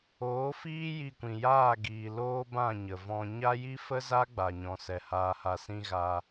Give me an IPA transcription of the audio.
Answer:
oː˨˦ f iː˦ j i˧ kʷ ĩ˨ j aː˦˨ ɡ iː˨ l oː˦ b ã˦˨ ɲ ə˨ v ɔ̃˧ ɲ a˦ j i˦ f ə˦ z a˦ ɡ͡b a˨ ɲ ɔ̃˨ s ɛ˨ h aː˨ h a˨ s ĩ˧ ɣ a˧

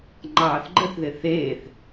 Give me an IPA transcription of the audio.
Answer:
ŋ͡ǃ ɑː θ ɡ͡ǃ ə θ ð ɪ θ eː θ

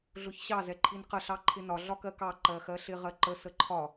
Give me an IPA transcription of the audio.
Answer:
ɮ ʊ ç ɕ ɑ z ɛ ǃʰ i n q ə ɬ ɑ ǃʰ ɪ n ɒ ɮ ɒ k ɜ k ɑ ǃ ɜ x ɜ ɬ ɪ ʁ ɜ ǃ ə s ə ǃʰ ɒ

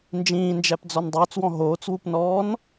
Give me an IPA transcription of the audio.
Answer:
n d͡ʒ ĩː n d͡ʒ æ p d͡z ɔ n dˤ ʊː t͡s w ɔ̃ ɦ oː t͡s w u p n ɔː n

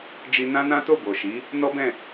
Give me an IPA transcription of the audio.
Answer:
d͡ʒ i˧ n ã˦ n ã˦ t o˦˨ b o˨ ʃ i˨˦ | n ɔ˦ b ɛ̃˦˨

